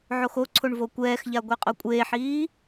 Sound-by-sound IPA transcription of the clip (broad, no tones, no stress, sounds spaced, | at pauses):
ʕ o x o ǀʰ o ɳ v o kʷ ɛː x ʎ a ɡʷ e qʼ o kʷʼ eː ħ iː